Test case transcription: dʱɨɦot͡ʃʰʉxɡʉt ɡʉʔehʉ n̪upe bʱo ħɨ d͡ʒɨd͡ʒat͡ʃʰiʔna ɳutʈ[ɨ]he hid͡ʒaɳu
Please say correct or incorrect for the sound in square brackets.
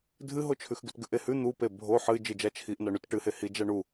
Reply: correct